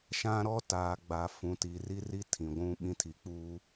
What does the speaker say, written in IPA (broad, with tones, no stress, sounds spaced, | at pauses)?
ʃ ã˦ ɾ ɔ˦ t aː˨ ɡ͡b a˨ f ũ˨ t i˨ r i˦ r i˦ tʰ ĩ˨ ɡʷ ũ˦ ɓ ĩ˦ tʰ i˨ k͡p uː˦